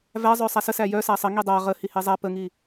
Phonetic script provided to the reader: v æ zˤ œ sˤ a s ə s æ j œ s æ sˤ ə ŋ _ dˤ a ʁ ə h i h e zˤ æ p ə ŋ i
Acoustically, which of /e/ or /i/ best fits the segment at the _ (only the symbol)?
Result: i